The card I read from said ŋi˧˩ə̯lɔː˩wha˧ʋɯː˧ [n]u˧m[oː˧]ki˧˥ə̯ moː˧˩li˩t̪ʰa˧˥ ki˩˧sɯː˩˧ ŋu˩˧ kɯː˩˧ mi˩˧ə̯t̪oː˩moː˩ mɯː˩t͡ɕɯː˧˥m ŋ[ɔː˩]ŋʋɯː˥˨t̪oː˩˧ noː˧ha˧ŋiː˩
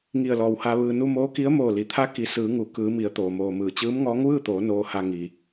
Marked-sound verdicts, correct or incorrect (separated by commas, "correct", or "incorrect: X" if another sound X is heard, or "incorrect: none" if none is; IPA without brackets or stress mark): correct, incorrect: oː˧˥, incorrect: ɔː˧˥